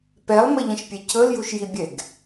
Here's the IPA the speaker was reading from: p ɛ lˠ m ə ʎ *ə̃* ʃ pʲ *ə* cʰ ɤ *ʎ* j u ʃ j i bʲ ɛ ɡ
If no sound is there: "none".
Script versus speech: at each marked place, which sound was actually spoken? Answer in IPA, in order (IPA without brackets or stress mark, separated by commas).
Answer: ə̃, ɛ, l